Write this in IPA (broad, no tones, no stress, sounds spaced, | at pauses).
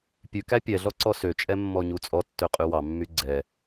pʲ ʉ k æ pʲ ɛ ɮ ɔ ǀ ɔ s ø t͡ʃʼ ɛ mː ɔ ɲ u t͡sʼ ɔ tː ø qʼ y w ɑ mː y ɡ͡ǀ ɛ